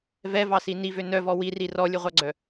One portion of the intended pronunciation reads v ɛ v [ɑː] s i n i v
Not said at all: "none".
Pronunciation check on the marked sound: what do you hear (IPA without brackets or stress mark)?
ɑ